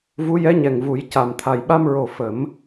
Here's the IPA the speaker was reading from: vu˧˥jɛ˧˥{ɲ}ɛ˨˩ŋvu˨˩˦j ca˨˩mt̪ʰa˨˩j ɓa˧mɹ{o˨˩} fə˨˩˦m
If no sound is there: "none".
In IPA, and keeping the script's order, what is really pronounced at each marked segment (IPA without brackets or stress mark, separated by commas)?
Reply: ɲ, o˨˩